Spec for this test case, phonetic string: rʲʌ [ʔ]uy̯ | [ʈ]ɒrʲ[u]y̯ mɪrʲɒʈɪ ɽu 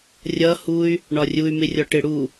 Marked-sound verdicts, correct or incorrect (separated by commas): incorrect, incorrect, correct